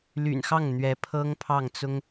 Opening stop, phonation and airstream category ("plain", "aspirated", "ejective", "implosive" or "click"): aspirated